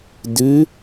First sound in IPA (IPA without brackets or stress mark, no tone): d